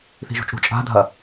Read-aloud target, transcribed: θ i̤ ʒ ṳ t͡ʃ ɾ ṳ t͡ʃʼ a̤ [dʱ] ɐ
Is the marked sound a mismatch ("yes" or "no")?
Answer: no